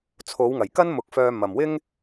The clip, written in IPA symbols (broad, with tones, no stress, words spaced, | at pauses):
t͡sʰo˨˧w ŋɐ˨˩j kɐ˥nmʊ˨˥k̚fœː˧ mɐ˨mwɪ˥ŋ